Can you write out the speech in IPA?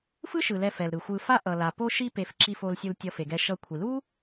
f ɯ˥ ʃ ɯ˩ l ɛ˨ f ɛ˩ l ɾ ɯ˩ xʷ ɯ˨ f a˦ ʔ ʌ˩ l a˩ p o˦ ʃ i˦ p e˨ f ǁ i˨ f o˨ l sʲ u˨ l tʲ ʌ˨ f e˩ ɡ ɛ˨ ʃ ʌ˨ kʷʰ i˩ l u˥

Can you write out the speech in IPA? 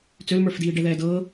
t͡s ø l m ə˞ f d iː ɖ ɛ ð ɛː d ɤː

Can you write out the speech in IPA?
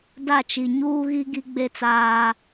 d a˦˨ t͡ʃ i˨ ɲ uː˦ ɣ i˦ ɡ i˦ ɡ͡b e˦ t͡s aː˦

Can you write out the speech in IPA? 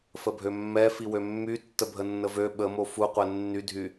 f ə bʱ ø mː ɛ f i w ø mː y tː ə bʱ ə nː ə v ø ɓ ə m o f u qʷ ɛ nː y dʱ y

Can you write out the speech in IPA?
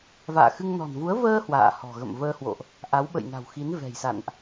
v a̰ː˧˨ x ɨ˧ ŋ n ɔ̤˨˩ n v u˨˦ ə̯ v əː˧ h w a̰ː˧˨ h ɔ̤˨˩ ɣ ə̰˧˨ m v əː˧ h w o̰˧˨ ʔ | ʔ a˨˦ w ɓ ə̰˧˨ j n a̤˨˩ w x i˨˦ n v ɛ̤˨˩ j s a̰˧˨ n ʔ

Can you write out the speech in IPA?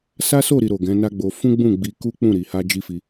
s a˦ s o˦˨ ɾ i˨ ɾ o˨ ɡ ɛ̃˨˦ n a˦ ɡ͡b o˧ f ũ˦ ɡ͡b ũ˦˨ ɡ͡b i˧ k u˦ k͡p ũ˦˨ ɾ i˨ h a˧ d͡ʒ i˦ f i˧

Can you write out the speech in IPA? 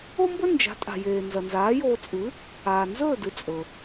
o˥ m b ɵ˥ n d͡ʒ a̤˩˥ tʼ a̤˩ j eː˩ n z ɐ˩ n z aː˩˥ j oː˧ t͡sʼ ʉ˩˥ | aː˩ n z ɵː˥˩ d ɨ˩ t͡sʼ ɵ˩

